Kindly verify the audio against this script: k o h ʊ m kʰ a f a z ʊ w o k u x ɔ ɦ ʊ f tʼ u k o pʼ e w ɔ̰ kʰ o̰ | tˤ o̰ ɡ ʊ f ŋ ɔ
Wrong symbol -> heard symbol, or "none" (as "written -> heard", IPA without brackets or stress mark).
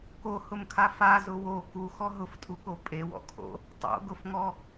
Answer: none